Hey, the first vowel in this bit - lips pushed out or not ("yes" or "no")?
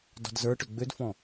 yes